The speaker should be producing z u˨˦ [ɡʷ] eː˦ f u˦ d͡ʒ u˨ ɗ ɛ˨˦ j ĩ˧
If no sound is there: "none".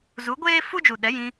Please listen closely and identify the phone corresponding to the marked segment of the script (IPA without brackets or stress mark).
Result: ɡʷ